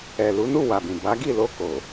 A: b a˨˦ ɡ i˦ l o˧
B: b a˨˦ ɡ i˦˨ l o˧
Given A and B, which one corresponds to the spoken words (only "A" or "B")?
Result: B